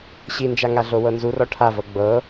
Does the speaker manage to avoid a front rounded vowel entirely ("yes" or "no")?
yes